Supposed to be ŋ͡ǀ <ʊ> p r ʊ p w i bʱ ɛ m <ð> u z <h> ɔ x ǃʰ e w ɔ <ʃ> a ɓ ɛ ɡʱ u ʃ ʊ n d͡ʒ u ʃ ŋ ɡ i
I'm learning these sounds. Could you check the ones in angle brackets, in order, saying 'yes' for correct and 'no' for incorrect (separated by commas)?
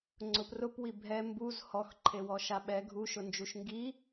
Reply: yes, no, yes, yes